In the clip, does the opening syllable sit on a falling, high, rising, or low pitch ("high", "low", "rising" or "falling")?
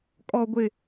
low